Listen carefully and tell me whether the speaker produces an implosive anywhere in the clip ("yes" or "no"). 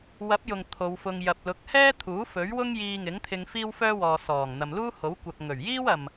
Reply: no